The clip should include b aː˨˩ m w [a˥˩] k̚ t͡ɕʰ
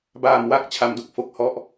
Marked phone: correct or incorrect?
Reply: correct